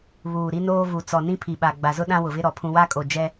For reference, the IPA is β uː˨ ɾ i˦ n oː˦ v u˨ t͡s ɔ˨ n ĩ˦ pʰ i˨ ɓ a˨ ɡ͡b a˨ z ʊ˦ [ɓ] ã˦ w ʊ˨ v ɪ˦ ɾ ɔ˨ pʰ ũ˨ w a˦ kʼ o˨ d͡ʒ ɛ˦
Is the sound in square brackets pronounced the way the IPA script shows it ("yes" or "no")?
no